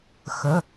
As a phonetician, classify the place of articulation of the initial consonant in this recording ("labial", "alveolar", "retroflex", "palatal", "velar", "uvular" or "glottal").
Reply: velar